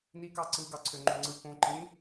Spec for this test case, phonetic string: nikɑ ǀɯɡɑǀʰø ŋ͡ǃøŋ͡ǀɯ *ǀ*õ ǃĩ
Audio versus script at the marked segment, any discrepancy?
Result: yes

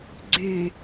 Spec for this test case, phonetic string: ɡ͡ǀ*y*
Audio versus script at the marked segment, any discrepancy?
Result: no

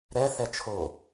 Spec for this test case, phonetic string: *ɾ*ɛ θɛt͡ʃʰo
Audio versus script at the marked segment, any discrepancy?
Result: no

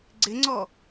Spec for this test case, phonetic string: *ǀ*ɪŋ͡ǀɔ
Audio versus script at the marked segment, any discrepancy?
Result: yes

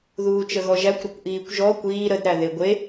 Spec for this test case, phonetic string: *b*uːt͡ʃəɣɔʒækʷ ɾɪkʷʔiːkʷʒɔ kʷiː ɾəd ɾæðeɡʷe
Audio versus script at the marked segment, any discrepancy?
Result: yes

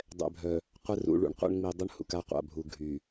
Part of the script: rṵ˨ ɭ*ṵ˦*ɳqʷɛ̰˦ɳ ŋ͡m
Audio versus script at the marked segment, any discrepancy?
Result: no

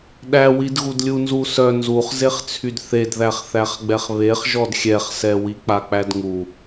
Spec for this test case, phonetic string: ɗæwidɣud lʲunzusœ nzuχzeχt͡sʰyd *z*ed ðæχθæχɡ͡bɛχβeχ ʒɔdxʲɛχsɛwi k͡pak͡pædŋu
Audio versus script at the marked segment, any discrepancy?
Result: yes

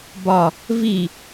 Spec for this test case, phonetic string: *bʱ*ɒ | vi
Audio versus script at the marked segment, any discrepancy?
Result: yes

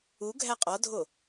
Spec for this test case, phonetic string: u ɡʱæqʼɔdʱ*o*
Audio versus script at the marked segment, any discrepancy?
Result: no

